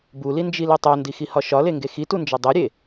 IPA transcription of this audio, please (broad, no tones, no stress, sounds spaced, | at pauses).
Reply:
b u l i n d͡ʒ i l i tˤ o n d i x i h ɒ ʃ ɒ l e ŋ ɡ e x i t u n d͡ʒ ɒ dˤ e ɾʲ e